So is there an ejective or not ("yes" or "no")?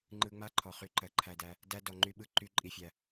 yes